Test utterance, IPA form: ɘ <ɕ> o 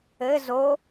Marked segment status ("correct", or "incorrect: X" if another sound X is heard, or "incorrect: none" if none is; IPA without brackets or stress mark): incorrect: z